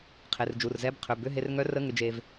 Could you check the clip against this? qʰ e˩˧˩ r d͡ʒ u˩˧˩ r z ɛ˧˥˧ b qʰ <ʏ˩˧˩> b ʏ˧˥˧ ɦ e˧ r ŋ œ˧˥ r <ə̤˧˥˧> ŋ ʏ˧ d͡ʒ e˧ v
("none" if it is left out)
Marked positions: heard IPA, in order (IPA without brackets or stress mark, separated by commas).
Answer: ʏ˩˧˩, ə˧˥˧